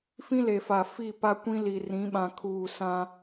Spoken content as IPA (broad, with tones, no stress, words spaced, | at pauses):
fĩ˦le˨fa˨ fi˦˨pa˦kʷĩ˦li˨ rĩ˨˦ɓã˨ kʰuː˨ sã˦